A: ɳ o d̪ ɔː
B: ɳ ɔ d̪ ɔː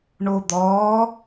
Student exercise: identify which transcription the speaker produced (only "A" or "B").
A